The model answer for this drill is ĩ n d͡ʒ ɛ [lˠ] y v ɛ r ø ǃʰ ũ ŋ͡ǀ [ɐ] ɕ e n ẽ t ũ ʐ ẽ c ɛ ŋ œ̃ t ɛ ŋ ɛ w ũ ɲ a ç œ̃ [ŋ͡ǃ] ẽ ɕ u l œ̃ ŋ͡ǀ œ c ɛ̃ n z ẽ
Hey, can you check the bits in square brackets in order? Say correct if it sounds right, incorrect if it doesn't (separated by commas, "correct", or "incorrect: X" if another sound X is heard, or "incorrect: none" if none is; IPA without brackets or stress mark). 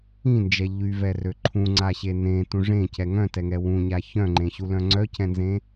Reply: incorrect: ʎ, incorrect: a, correct